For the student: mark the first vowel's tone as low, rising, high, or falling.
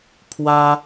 high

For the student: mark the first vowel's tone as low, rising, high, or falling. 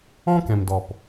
high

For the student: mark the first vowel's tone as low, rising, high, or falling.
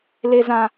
low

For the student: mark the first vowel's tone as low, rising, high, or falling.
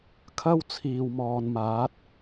high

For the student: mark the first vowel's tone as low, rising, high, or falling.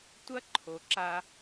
high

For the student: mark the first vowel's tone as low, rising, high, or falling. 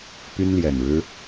high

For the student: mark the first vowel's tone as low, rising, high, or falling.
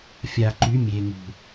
low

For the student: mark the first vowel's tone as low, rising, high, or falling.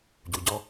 low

